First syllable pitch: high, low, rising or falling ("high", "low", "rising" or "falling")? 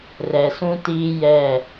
low